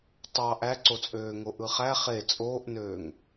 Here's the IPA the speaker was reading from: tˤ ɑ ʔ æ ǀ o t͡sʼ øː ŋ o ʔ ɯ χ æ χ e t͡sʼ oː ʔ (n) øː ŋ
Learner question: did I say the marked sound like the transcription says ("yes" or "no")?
yes